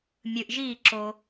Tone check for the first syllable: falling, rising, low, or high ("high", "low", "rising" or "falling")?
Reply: low